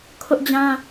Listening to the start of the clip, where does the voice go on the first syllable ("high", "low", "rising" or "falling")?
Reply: high